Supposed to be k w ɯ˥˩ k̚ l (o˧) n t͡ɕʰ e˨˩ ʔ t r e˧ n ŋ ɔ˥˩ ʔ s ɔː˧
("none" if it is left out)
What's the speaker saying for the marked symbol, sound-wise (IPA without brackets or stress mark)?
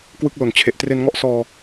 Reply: o˨˩